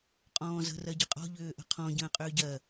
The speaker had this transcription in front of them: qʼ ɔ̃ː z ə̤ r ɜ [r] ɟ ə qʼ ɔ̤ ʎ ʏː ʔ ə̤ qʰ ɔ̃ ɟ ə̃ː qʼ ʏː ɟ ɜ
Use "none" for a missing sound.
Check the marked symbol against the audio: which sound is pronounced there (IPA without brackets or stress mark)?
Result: none